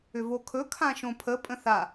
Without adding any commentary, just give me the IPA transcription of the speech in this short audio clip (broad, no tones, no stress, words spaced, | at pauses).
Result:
ʏvokʰɵ kʰãʃõpʰə pʼə̃θa